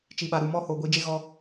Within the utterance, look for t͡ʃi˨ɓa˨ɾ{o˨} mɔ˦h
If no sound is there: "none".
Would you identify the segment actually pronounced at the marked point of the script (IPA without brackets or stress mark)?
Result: u˨